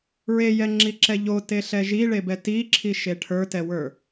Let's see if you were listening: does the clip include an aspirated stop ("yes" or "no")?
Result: yes